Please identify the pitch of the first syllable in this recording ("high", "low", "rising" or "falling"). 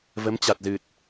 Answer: rising